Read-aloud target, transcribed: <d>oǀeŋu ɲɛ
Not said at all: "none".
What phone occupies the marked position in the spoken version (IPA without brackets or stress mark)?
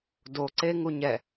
d